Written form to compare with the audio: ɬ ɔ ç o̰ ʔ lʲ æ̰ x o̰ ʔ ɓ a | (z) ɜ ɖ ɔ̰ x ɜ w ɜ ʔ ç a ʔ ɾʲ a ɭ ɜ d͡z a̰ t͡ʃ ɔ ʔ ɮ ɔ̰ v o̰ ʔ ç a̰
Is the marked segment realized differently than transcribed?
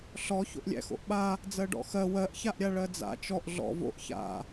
yes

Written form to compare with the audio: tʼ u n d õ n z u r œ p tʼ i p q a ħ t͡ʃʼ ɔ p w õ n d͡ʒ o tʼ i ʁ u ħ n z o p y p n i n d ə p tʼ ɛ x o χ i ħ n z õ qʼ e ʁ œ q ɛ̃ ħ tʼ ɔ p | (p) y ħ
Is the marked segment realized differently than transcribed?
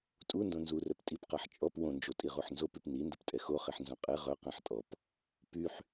no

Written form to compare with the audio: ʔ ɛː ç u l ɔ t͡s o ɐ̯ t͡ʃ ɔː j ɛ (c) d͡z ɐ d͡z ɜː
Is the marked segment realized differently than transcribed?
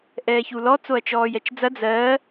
yes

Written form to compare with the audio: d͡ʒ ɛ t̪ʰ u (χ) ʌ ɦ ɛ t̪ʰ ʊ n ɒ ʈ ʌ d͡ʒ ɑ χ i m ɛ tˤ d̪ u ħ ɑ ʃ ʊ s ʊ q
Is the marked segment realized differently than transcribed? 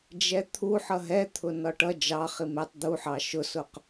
yes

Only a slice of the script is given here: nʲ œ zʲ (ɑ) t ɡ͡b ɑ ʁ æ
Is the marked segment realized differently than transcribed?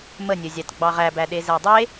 no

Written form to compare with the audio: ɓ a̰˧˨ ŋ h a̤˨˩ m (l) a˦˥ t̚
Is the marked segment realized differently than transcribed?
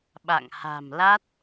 no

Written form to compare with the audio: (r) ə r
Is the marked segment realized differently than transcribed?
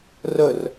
no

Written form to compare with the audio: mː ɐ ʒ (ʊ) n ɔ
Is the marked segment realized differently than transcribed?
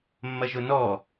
no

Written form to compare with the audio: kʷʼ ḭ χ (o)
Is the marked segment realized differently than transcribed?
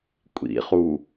yes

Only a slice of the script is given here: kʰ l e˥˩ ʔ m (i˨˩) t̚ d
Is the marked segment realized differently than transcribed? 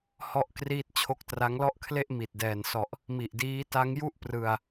no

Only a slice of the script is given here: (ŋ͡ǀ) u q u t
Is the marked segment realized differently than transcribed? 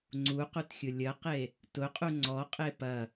no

